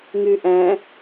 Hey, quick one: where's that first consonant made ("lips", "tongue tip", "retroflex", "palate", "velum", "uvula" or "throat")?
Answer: velum